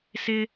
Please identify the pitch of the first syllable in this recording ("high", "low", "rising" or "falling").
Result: high